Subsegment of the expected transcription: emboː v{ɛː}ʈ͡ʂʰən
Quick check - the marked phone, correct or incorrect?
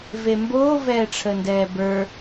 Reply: correct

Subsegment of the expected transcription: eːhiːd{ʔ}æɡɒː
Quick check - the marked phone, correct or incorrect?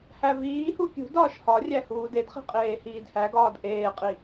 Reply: incorrect: h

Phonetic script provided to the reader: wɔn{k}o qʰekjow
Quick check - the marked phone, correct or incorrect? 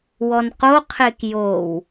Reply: incorrect: q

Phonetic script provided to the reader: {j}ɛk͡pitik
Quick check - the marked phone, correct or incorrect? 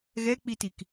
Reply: incorrect: ɣ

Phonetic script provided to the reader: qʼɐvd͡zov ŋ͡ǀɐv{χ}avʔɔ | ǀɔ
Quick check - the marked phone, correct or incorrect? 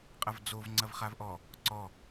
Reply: correct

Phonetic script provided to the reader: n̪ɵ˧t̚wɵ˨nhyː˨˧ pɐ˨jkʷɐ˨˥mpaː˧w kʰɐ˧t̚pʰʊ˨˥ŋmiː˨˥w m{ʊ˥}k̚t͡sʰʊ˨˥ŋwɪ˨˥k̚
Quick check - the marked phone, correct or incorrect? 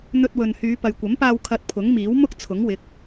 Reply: correct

